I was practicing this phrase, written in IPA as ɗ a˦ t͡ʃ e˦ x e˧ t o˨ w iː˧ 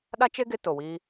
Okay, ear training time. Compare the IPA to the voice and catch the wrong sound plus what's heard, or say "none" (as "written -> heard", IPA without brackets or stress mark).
x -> ɡ